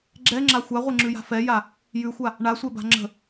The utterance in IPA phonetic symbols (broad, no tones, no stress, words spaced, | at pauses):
ɡ͡ǁɛŋ͡ǁa xʷaʁʷɛŋ͡ǁʉja̤ fɛja | jʉxʷa | ɳasʷɛba̤ ŋ͡ǁə̤